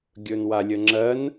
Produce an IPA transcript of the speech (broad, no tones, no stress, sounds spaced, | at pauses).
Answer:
ɡʲ ɵ n w a lʲ ə ŋ͡ǁ ɜ n